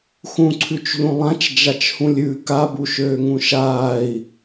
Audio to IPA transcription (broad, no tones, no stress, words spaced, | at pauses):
xũǀʰʉt͡ʃʎũ lˠãt͡ʃd͡ʒat͡ʃhũlʲ ʉ kabuʃøːŋũ ʃaːi̯